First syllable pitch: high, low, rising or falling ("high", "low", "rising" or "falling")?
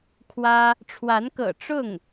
high